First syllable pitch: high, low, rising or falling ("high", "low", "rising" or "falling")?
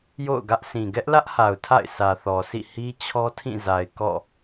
falling